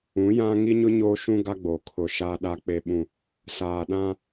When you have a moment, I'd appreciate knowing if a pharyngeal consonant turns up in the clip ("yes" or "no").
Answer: no